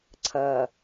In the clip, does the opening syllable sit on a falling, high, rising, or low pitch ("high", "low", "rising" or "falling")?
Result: low